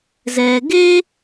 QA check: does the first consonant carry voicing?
yes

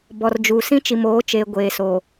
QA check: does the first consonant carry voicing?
yes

